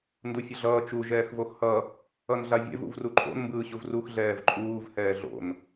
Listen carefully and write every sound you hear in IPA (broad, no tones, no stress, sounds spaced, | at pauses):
n d u fʲ ʌ ɮ ʌː t͡ʃ u ʒ ɛː x v o x h ʌ | ʌ n ɮ a vʲ ɛ̰ v ṵ v r u ǃʼ o̰ n m b ɯː ɕ u v r u x ɮ ɛː v ǃʼ uː v h ɛː ɮ o̰ n